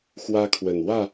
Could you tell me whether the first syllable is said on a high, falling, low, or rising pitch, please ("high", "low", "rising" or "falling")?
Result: high